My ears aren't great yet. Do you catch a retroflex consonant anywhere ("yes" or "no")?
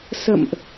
no